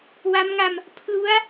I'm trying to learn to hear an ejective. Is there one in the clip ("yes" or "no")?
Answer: no